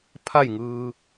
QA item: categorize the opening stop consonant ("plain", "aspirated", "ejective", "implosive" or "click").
aspirated